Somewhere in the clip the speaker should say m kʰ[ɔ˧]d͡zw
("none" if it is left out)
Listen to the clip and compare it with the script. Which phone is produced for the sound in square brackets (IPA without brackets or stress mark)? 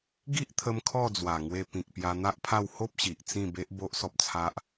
ɔ˥˧